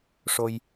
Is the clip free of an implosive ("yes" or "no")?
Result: yes